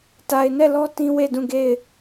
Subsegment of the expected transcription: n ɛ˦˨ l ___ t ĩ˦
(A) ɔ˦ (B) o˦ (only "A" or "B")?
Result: A